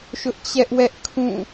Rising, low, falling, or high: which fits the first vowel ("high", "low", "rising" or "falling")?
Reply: high